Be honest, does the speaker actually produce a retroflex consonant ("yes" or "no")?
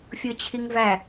no